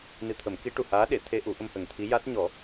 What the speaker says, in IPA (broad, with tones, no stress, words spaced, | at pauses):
nɨ˧t̪ʰə˨˩˦mki˧˥ ʈu˨˩haː˧˥ɗe˨˩˨t̪ʰe˧ ʔu˨˩˦ʔə˧mhə˨˩ŋt̪ʰi˧˥ ja˦˥t̚ ɲɔ˨˩˦